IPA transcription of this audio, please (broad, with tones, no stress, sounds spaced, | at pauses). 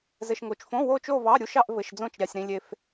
z ɘ˧ ʃ ŋ o˧ t͡ʃ f õ˧˥˧ w o˥˧ t͡ʃ o˥˧ v ɑ˧˥˧ ɾʲ u˧˥˧ ʃ ɑ˥˧ ʔ v ɘ˧˥˧ ʃ d͡z õ˥˧ t͡ʃ ɾʲ ɑ˧ sʲ ɾ ĩ˧ lʲ e˧ f